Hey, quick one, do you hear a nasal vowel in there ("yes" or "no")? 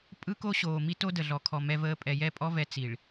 no